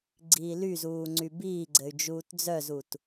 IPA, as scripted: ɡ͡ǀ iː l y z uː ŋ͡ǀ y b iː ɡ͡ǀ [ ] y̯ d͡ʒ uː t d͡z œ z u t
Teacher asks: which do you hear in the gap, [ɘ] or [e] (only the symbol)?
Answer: ɘ